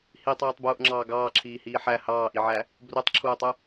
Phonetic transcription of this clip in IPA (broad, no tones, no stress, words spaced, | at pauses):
hitˤiːtˤbuːʔŋ͡ǁɑː ɡɑːǁʰiːhiː ħæ hɑːʔiʕæ | brutˤǁʰuːtˤu